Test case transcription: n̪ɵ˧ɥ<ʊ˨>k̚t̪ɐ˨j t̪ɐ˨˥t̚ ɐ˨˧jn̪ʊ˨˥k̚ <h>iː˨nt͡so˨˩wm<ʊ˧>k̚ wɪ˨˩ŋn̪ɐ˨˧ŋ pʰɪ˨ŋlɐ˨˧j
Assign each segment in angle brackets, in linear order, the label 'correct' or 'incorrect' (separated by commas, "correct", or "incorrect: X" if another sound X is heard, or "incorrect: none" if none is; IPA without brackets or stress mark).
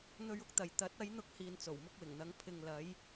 correct, correct, correct